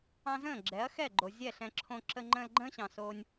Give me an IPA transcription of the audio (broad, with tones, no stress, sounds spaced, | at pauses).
ɑ̃˧ z ə̃ː˦˨ ɡ͡ǁ ɛ˨˦ ɐ̯ x ɛ˦˨ ɡ͡ǃ o˨ zʲ ɛ˦˨ ɬ ɛ̃˧ ǁʰ õ˧ ǁ ə˧ ŋ͡ǃ ə̃ː˧ l ɡ͡ǃ ə̃ː˦ ɕ ɑ̃˨ s oː˧ nʲ